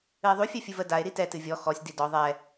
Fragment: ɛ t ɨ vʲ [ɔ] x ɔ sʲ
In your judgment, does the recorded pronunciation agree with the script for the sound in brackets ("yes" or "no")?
yes